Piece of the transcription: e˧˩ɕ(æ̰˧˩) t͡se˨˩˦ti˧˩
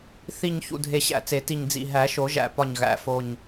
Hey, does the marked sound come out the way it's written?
yes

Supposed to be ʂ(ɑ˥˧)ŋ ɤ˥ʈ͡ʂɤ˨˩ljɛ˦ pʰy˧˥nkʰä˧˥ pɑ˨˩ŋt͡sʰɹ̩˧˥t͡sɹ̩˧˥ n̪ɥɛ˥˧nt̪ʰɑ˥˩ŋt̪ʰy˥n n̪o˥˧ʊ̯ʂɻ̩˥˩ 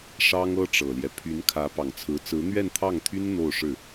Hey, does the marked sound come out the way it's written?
no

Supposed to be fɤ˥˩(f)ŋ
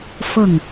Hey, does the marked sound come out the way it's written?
no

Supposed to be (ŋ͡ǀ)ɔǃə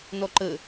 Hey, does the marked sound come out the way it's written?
no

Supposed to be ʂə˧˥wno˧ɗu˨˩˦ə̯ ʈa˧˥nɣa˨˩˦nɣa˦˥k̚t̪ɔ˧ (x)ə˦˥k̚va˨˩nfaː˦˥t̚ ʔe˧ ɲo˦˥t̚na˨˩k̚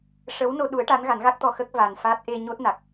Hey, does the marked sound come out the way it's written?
yes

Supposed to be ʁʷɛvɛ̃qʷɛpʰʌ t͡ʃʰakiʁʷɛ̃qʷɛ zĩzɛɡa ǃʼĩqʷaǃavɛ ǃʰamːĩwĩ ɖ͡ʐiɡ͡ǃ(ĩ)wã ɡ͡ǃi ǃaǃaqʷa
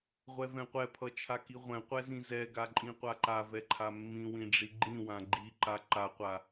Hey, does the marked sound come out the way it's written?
yes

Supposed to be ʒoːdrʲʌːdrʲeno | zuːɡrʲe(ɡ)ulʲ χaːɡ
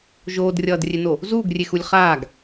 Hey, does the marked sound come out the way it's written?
no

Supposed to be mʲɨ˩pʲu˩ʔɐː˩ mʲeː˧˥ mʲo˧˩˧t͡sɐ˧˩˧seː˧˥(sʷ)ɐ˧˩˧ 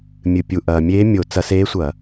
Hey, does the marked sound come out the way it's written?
yes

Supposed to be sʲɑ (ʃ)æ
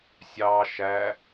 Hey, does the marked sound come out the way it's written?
yes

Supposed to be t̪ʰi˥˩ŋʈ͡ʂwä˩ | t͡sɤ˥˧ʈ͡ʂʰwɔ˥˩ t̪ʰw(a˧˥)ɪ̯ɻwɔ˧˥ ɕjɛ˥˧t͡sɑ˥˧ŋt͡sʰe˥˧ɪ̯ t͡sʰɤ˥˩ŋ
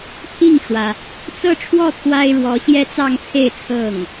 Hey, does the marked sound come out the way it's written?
no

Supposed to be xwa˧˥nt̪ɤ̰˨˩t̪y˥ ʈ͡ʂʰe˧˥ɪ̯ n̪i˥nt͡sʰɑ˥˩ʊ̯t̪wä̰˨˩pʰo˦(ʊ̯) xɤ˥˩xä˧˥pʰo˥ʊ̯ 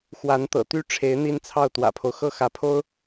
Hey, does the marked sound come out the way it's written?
yes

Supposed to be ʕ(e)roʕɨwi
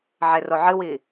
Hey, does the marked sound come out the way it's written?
yes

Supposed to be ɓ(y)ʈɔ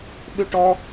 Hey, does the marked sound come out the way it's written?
yes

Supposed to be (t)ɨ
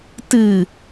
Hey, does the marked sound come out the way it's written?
yes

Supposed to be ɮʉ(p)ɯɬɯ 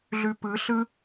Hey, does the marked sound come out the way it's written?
yes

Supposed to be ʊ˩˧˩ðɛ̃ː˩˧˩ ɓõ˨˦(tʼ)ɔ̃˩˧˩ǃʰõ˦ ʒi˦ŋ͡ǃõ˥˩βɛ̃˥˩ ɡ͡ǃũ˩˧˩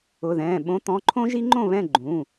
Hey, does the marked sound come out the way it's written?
no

